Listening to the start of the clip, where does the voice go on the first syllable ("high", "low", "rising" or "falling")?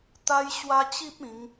high